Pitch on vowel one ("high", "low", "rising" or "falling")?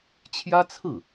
high